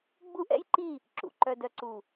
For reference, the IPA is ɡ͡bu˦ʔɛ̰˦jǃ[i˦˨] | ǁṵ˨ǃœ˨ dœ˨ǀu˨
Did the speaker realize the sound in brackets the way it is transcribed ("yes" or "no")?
yes